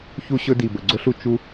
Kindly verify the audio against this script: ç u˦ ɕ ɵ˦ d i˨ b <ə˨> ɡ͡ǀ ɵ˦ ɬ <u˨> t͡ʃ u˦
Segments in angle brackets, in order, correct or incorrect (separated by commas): correct, correct